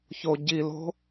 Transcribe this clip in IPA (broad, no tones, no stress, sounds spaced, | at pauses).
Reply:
ç o ɟ i l o̤